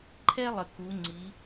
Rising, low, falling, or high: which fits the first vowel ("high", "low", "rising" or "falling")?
high